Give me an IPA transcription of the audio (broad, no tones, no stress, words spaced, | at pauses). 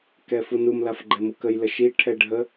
kɛfunum lafɡ͡ǃɛmukəj ləʃi ʈʰɛɖʱə